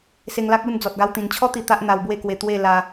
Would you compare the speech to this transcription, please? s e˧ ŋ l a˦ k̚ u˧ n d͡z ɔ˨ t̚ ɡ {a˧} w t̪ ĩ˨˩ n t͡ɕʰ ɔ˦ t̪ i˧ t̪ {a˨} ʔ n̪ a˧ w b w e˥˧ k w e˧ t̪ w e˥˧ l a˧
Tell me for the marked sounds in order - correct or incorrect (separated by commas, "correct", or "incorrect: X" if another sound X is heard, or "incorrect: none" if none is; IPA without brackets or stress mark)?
correct, incorrect: a˦